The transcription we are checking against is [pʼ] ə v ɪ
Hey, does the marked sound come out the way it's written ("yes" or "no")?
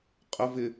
no